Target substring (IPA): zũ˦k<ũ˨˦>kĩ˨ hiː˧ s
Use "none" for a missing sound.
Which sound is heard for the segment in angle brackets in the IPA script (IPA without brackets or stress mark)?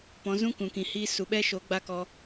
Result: ũ˨